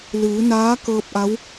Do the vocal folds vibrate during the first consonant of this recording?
yes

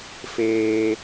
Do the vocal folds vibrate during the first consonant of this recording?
no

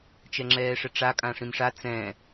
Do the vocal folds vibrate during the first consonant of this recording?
no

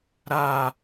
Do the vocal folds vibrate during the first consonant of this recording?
yes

